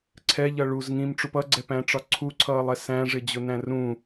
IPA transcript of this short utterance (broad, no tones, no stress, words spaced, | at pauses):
ǀʰɛʎʌ ɭuz ŋĩmʈ͡ʂup ʌɡ͡ǀɛpæ̃ʈ͡ʂɒ ǀʰuǀʰʌːlˠɛ sæ̃ʐɪd͡ʑʊnæ̃ rũ